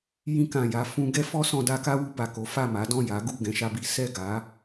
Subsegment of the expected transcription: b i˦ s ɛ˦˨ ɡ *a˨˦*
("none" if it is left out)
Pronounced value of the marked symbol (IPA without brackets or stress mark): a˨˦